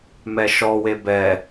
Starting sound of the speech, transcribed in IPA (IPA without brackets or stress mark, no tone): m